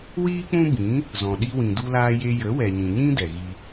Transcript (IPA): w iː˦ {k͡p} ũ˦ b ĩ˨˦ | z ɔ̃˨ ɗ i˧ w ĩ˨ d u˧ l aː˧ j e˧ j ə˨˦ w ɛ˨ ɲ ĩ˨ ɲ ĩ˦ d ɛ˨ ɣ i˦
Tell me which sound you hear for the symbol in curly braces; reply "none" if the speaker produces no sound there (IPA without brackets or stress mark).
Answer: k͡p